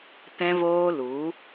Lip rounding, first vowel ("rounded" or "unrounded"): unrounded